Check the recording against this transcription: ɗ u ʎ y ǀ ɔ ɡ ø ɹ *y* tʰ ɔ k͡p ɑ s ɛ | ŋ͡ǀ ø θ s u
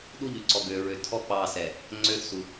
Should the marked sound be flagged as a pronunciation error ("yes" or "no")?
yes